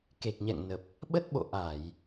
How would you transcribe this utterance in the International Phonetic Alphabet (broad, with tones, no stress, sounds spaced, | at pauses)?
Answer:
k e˨˩ k̚ ɲ ɛ̰˧˨ ŋ n ə˨˩ p̚ | ɓ ə˦˥ t̚ ɓ o̰˧˨ ʔ a˧˩˨ j